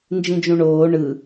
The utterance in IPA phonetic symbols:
n d͡ʒ ĩ d͡ʒ ũ ɳ oː ɳ ɯ

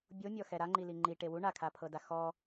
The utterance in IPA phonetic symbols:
bʲ o mʲ ɔ x ɛ ɾ a ŋ͡ǃ i l i ŋ͡ǃ i ʈ e w u ɳ a kʰ a pʰ ɤ d a x ɔ

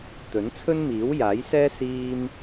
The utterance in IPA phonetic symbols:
t̪ ɵ˨˥ n t͡sʰ ɵ˥ n m iː˨˥ w j aː˨˥ j s ɛː˥ s iː˥ m

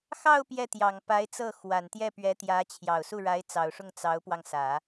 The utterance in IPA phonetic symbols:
x ɑ˥˧ ʊ̯ p j ɛ˥˩ t̪ j ɑ˨˩ ŋ p a˧˥ ɪ̯ t͡s ɤ˥˩ x w a˨˩ n t̪ j ɛ˥˩ p ɥ ɛ˧˥ t̪ j ä˧˥ t͡ɕʰ j ɑ˨˩ ʊ̯ s u˥˩ ɻ a˧˥ ɪ̯ t͡s ɑ˨˩ ʊ̯ ʂ ʊ˥˩ ŋ t͡s ɑ˧˥ ʊ̯ p w ɑ˧ ŋ s ä˨˩˦

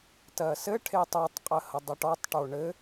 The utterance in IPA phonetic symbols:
t ɜ s ɘ ʈʰ e tˤ o tˤ qʼ ə h ə dˤ ə ʈ ɔ tˤ ʈ o ɳ ɘ

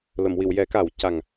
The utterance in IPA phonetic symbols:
l ə˨˩˨ m w i˨˩˨ w j ɛ˨˩˦ k a˨˩˦ w c a˨˩ ŋ

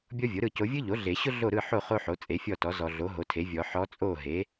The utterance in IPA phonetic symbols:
bʲ ɔ˥ vʲ o˩˥ ɾ ɯ˥˨ c o˧˥ vʲ ɯ˥ ʎ o˩˥ ɮ e˨˩˦ ɕ ʊ˥ ɮ o˥˨ ɾ ɯ˥˨ ħ o˥˨ χ o˥ ħ o˩˥ t͡sʼ e˩˥ fʲ ɔ˥˨ t ɔ˩˥ z ɔ˨ ɮ o˩˥ ɦ o˩˥ tʰ e˩˥ vʲ ɔ˨˩˦ ħ ɔ˧˥ t͡sʼ o˥˨ ɦ e˩˥

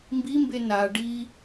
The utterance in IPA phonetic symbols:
m b i m b e n a ɖ i

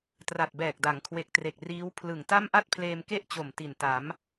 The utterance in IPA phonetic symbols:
t r a˨˩ t̚ b ɛː˨˩ k̚ d a˩˦ ŋ kʰ w e˨˩ k̚ t r e˨˩ k̚ r iː˦˥ w pʰ l ɯ˨˩ ŋ t a˥˩ m ʔ a˥˩ t̚ pʰ l eː˧ m k e˥˩ ʔ t͡ɕ o˨˩ m t i˨˩ n t a˩˦ m

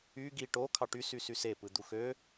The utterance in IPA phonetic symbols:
y ɡ i ʈ o kʰ ɑ ʈ y s y s y s e p ɯ d̪ u x ø

